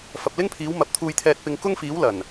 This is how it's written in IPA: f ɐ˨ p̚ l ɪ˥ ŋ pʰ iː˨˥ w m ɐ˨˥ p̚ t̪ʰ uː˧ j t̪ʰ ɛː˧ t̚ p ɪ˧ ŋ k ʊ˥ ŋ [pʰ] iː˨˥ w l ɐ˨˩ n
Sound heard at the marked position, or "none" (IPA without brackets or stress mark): f